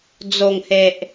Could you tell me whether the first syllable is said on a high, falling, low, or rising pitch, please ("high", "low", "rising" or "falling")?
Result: low